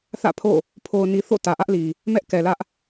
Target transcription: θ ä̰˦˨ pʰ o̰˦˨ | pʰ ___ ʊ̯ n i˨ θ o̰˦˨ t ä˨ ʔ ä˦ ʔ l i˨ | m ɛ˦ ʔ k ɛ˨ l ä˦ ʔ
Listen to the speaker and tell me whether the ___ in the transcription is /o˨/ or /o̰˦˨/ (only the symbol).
o˨